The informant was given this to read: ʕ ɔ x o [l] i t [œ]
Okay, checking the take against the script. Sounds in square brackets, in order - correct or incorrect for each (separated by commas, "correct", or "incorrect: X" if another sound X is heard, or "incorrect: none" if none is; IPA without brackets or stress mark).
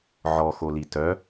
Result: correct, correct